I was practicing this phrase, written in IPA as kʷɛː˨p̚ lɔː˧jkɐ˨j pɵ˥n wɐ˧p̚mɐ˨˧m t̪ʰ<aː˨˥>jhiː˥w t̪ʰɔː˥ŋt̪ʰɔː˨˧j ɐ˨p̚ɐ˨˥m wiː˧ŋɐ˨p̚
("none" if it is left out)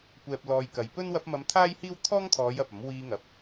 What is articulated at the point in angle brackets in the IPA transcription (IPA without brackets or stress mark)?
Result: aː˥